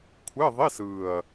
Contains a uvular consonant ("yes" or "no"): no